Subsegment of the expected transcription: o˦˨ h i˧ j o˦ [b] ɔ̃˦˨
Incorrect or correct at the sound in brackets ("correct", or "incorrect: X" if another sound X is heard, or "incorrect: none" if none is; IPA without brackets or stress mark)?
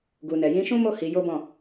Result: correct